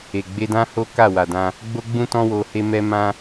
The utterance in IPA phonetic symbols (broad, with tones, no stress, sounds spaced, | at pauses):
e˨ ɡ͡b e˧ d ã˦ h o˦ k a˦˨ w a˨ d ã˧ | ɡ͡b o˦ ɡ͡b ũ˦ t ɔ̃˦ w o˧ h e˦ m ɛ˦ m ã˦